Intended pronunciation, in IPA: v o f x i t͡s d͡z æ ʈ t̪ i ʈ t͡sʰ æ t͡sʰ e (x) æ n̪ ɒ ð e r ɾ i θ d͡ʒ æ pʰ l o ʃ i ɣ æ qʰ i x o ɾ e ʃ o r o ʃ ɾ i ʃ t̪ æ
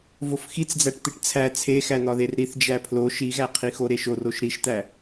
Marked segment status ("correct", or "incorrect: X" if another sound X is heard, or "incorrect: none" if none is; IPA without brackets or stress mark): correct